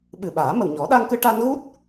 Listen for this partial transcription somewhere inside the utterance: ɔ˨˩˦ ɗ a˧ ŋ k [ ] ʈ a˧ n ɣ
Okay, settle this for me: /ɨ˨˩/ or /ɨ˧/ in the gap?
ɨ˧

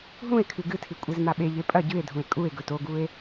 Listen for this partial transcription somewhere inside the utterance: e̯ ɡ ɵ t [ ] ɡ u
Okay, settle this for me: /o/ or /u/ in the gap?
o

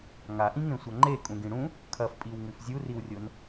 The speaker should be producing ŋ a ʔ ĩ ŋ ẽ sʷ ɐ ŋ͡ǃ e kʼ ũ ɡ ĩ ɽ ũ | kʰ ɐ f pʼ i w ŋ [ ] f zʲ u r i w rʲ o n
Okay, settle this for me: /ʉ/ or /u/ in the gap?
ʉ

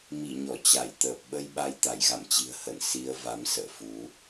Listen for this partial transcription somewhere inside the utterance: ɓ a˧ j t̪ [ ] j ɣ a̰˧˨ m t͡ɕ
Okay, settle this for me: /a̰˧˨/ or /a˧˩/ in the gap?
a˧˩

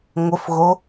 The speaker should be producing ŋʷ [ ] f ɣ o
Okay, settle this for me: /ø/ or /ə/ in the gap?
ə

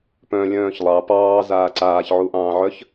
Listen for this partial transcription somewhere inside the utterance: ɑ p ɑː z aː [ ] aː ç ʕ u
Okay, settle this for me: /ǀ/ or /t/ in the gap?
ǀ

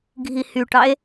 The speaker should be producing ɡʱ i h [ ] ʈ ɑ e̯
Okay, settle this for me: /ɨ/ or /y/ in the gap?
y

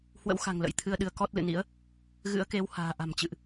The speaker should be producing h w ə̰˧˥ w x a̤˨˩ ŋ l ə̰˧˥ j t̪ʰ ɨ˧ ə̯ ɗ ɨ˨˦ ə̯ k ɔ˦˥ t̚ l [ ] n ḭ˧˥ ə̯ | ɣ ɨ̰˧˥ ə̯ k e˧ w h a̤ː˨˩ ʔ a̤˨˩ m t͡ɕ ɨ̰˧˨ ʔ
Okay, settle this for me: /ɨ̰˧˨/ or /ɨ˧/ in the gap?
ɨ̰˧˨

